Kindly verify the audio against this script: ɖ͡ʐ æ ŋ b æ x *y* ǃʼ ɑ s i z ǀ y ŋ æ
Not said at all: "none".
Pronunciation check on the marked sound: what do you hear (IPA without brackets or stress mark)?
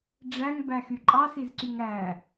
y